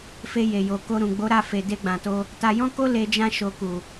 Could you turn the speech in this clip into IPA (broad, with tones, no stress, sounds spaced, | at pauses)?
f e˧ j e˨ j o˨ k o˧ ɾ ũ˨ ɡ͡b o˨˦ ɾ a˦˨ f e˨ d e˧ ɡ͡b ã˨ t o˧ | t a˧ j ɔ̃˦ k o˦ l e˧ d͡ʒ ã˧ ʃ o˨ k u˨